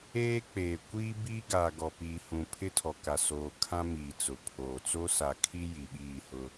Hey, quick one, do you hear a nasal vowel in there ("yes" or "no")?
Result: yes